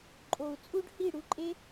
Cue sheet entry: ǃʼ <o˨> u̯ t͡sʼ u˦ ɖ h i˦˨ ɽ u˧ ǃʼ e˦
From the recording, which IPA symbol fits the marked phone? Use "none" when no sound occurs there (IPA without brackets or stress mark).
o˨